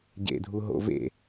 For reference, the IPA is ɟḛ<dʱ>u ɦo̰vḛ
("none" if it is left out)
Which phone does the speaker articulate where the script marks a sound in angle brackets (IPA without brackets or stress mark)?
dʱ